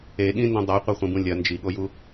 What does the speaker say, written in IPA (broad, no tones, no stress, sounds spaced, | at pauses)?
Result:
e ɠ ĩ n d ɐ̃ dˤ a qʷ ɐ χʷ ĩ b ũ lʲ ɐ n d͡ʒ i ɠ o j u